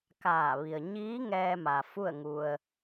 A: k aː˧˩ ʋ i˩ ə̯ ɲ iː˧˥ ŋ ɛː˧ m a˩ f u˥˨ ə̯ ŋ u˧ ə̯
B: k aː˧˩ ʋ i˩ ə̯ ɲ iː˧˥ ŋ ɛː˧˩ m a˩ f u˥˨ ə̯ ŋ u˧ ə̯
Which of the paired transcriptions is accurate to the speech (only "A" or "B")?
A